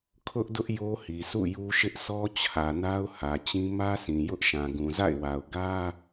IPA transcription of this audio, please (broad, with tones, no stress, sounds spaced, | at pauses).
kʰ ʊ˦ ʔ d ʊ˦ ʔ j o˦ h i˨ s ṵ˦˨ j u˦ ʃ ɪ˦ ʔ s ɔ˦ t͡ɕʰ ä˨ n a˦ ʊ̯ h ä˨ t͡ɕ ĩ˦ m ä˦ s ĩ˨ j ʊ˦ ʔ ʃ ã˨ ɡ ũ˨ z a̰˦˨ ɪ̯ w a˨ ʊ̯ ɡ ä˦